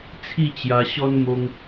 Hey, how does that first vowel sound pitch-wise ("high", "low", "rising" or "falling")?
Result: falling